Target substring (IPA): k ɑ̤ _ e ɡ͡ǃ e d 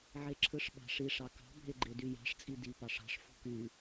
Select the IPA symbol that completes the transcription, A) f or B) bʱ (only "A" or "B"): B